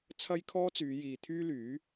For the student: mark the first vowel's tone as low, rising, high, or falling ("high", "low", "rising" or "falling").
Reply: high